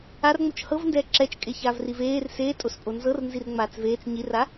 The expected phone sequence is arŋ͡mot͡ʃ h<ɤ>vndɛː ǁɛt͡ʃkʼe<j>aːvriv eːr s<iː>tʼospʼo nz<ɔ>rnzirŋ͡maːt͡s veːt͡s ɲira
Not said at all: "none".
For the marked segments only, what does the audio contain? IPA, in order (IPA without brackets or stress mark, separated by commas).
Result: ɤ, ç, eː, ɤ